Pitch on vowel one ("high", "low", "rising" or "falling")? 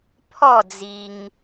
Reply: falling